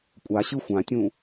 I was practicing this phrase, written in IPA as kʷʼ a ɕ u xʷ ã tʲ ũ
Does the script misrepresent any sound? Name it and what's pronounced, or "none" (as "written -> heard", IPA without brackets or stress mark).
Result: u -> ɯ